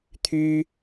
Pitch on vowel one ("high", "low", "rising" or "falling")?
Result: high